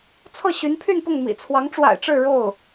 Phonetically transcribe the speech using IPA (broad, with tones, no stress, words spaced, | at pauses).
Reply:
t͡sʰɤ˥˩ɕy˧˥npʰy˥˧npʊ˥˩ŋ mḭ˨˩t͡sʰwɑ˧˥ŋʈ͡ʂwa̰˨˩ɪ̯ʈ͡ʂɻ̩˥˧ ɻo˥˩ʊ̯